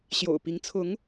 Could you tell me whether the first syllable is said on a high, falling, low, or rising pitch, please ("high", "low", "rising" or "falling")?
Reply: low